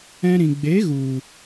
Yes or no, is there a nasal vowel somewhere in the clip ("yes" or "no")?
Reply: yes